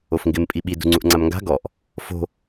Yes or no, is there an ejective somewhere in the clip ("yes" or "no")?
yes